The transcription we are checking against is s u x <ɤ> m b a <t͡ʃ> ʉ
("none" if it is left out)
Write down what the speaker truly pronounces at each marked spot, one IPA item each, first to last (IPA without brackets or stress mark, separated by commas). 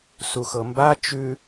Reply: ɤ, t͡ʃ